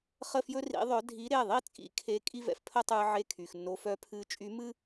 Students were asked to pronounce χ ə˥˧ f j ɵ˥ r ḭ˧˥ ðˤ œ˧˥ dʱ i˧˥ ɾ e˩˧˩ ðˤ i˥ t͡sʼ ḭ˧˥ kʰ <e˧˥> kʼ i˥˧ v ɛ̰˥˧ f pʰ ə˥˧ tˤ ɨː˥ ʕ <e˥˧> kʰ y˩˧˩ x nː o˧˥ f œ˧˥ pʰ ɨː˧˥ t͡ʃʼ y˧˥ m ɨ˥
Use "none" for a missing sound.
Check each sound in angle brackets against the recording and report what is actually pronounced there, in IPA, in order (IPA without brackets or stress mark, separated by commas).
e˧˥, e˥˧